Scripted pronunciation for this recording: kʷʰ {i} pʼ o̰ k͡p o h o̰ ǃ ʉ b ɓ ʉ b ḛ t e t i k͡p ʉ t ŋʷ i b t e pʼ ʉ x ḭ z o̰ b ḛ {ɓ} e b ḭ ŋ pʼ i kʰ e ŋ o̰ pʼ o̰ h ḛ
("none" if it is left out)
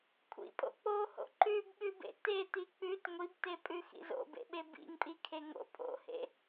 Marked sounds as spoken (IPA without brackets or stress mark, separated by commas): ḭ, ɓ